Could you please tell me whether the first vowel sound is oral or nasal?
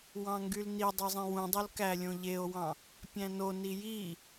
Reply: nasal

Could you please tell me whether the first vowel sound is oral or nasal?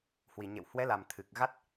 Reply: oral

